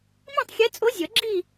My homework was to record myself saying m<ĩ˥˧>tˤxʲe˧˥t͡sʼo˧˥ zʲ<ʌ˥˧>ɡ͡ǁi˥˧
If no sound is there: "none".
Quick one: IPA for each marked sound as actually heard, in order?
ĩ˥˧, ʌ˨˩˦

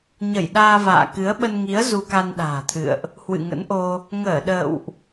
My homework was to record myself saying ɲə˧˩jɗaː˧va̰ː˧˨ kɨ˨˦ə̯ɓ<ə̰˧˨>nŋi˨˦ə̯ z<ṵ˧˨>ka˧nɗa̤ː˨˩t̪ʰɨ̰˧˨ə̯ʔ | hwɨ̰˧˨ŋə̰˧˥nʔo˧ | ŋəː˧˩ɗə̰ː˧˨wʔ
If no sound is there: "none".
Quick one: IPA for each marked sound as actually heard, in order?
ə˧, u˧

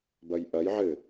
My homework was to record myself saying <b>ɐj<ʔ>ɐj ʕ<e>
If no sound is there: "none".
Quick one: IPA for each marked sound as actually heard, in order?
b, ʔ, ɘ

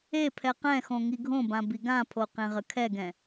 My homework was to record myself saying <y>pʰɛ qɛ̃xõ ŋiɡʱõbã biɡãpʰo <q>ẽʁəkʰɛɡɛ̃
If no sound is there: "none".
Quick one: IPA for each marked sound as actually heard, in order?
e, q

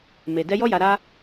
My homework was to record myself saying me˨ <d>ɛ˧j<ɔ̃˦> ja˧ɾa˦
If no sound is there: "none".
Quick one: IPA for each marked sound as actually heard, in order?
d, ɔ˦

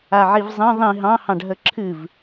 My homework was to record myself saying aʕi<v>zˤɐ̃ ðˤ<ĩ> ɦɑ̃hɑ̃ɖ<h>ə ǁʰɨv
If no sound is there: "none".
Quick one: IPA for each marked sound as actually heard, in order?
v, ĩ, ɦ

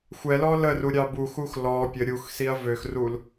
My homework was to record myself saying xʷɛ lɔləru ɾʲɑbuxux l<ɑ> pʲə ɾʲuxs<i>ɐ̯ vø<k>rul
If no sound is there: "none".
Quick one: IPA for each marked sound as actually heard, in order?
ɔ, i, x

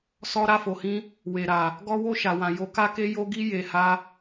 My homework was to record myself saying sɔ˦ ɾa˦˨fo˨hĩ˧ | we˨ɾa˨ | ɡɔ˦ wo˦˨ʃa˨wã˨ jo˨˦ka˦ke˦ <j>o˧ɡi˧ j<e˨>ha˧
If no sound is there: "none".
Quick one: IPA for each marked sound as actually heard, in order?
j, e˨

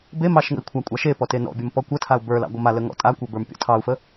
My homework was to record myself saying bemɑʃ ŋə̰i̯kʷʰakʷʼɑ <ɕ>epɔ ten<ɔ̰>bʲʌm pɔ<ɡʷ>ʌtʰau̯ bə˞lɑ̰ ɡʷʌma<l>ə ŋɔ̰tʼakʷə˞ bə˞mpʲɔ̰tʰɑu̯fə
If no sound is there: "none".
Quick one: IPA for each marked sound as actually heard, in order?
ʃ, ɔ̰, kʷ, l

